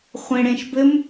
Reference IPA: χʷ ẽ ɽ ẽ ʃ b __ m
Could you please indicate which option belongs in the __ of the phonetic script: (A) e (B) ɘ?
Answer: B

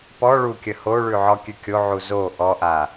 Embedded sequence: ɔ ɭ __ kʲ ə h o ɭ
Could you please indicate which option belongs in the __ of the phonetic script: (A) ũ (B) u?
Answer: B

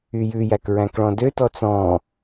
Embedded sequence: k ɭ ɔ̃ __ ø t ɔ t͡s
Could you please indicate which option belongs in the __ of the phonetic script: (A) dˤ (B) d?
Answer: B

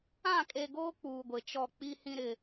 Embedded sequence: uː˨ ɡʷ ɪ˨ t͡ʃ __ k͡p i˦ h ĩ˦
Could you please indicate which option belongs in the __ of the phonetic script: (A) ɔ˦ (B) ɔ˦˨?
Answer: B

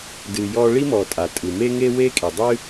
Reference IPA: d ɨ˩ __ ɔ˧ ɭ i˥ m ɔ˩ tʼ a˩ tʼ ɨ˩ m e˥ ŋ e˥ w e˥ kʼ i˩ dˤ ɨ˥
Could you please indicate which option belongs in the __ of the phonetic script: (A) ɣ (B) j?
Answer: B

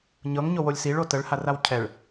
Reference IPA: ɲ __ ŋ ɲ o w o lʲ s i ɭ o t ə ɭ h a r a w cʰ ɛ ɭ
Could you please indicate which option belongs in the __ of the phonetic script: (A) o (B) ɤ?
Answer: B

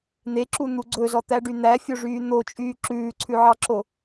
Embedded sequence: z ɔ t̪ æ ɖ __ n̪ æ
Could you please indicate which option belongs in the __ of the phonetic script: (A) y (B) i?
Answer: A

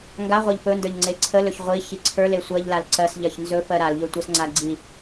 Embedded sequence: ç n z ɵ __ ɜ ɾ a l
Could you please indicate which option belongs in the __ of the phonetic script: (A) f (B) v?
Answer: A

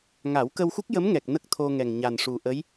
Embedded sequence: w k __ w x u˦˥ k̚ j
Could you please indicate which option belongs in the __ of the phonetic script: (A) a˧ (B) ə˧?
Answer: B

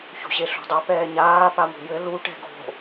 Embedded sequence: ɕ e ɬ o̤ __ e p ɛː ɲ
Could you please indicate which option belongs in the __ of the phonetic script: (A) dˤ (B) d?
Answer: A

